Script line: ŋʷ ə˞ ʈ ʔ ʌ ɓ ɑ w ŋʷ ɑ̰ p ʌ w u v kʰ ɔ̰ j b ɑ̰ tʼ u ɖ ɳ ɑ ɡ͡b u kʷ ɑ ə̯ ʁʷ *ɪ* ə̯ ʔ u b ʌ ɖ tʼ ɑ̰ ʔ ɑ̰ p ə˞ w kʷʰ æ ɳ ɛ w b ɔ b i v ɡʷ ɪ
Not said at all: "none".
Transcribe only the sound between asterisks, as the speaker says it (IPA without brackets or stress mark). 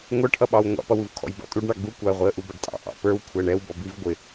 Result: i